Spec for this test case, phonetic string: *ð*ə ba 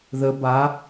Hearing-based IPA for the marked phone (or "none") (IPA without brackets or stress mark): ð